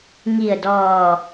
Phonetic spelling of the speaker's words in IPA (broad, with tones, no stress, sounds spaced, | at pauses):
ŋ i˧˩ ə̯ d ɔː˧˩